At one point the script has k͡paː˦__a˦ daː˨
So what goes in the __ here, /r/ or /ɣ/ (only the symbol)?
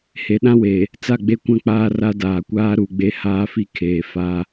r